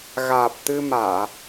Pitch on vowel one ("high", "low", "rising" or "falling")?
low